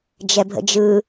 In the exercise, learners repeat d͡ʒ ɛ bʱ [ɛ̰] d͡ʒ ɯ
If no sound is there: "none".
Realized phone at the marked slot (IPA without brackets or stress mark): ə̰